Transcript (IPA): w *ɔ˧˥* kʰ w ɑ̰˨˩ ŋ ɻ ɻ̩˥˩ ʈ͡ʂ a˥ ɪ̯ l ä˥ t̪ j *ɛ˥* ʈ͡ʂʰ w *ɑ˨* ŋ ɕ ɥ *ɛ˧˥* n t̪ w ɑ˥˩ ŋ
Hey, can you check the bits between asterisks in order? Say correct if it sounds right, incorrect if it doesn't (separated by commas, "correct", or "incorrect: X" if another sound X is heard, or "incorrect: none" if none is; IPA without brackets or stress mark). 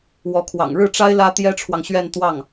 correct, correct, correct, incorrect: ɛ˥˧